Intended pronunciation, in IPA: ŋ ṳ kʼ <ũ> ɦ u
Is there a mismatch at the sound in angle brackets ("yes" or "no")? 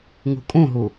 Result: no